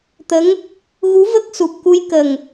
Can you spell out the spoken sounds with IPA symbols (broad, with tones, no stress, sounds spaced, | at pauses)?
t̪ ə˧˥ ŋ | ɣ u˧˥ v ə˦˥ k̚ s u˨˩ p̚ k u˧˥ j k ə˨˩ ŋ